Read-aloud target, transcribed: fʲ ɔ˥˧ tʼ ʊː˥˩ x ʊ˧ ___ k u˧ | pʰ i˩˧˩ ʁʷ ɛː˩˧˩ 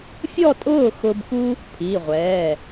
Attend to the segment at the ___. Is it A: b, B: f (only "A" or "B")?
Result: A